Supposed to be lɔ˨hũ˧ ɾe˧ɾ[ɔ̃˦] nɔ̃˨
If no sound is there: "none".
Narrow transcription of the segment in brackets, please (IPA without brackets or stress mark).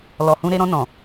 ɔ̃˧